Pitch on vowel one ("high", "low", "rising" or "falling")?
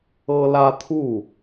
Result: high